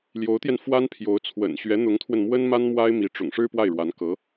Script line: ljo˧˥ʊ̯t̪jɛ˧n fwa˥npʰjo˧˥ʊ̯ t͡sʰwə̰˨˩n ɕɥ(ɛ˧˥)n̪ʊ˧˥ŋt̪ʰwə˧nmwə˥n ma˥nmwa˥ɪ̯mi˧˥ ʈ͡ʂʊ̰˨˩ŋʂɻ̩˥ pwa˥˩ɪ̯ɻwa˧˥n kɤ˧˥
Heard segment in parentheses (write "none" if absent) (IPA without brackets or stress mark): ɛ˧˥